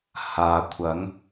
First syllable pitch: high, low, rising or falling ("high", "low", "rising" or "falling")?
low